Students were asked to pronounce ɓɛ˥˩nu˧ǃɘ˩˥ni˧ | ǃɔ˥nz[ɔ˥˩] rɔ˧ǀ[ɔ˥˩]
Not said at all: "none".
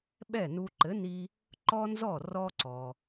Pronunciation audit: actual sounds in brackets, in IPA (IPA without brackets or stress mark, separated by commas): ɔ˥˩, ɔ˩